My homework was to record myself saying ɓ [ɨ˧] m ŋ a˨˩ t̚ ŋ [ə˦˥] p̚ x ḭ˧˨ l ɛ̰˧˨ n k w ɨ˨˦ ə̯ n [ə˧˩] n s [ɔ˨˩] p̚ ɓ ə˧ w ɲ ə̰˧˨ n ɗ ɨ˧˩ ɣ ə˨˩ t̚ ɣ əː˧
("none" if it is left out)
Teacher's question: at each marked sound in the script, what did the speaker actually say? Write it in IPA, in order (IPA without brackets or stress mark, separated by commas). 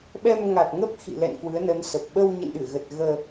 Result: ɛ˧, ə˦˥, ə˨˦, ə˨˩